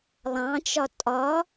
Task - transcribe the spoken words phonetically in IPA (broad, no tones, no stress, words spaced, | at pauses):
lˠɑ̃t͡ʃɒ tʼɒ